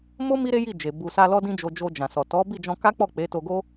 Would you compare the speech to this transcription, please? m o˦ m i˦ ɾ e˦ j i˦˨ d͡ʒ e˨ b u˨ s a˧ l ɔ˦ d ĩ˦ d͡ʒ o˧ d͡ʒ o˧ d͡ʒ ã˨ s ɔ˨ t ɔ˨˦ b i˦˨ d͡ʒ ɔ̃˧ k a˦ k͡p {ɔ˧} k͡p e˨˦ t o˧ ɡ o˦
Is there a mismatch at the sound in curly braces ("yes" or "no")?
yes